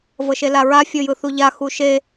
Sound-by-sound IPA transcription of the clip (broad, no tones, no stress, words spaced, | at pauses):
vɤʃelaɹa fʲɤjɯθuʎa xuʃe